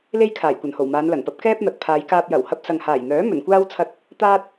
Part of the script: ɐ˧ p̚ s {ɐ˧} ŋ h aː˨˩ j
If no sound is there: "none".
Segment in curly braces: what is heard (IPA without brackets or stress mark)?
ɐ˨